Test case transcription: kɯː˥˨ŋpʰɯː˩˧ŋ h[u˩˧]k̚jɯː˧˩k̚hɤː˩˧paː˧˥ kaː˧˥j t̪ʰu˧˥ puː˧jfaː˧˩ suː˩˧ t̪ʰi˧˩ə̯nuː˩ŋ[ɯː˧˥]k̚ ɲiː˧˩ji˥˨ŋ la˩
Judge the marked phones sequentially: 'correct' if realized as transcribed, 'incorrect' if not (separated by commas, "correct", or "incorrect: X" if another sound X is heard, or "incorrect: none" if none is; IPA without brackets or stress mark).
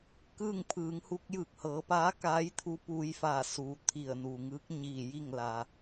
incorrect: u˧, correct